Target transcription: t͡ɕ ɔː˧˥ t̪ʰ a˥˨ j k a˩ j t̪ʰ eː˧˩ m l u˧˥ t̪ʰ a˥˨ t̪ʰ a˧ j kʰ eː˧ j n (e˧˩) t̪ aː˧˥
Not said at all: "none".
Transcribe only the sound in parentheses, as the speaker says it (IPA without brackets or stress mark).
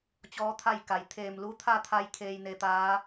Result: e˧